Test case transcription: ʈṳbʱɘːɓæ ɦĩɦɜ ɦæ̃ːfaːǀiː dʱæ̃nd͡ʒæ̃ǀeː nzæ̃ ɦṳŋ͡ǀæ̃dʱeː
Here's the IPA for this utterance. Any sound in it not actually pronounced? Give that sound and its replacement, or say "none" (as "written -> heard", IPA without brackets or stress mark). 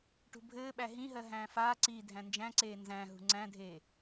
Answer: none